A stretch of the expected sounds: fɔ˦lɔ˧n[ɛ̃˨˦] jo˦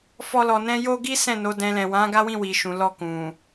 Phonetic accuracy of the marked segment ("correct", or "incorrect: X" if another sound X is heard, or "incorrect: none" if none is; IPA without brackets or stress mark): incorrect: ɛ̃˦